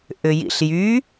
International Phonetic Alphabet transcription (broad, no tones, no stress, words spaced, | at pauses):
ʔʏjḭɬjy